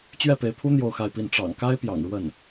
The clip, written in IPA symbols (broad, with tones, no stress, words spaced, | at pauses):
t͡ɕɥɛ˥˩pe˧˥ɪ̯pʰu˥ n̪jo˥˧ʊ̯xa˥˧ɪ̯pi˥˩n ʈ͡ʂɑ̰˨˩ŋka˥ɪ̯pjɑ̰˨˩ŋ ɻwə˥˩n